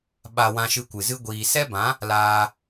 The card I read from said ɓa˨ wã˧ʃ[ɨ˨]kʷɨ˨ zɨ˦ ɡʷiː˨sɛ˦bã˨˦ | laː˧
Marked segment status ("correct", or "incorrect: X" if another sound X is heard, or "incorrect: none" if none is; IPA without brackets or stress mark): incorrect: ɨ˧